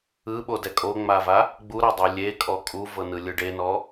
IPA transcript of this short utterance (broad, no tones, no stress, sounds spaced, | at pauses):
ɯ ɓ o d ɛ kʼ o ŋ͡m a v a | ɡ͡b u ɾ a dˤ i lʲ e kʼ ɔ kʼ u v ɤ n ɯ lʲ ɯ ɖ e n ɔ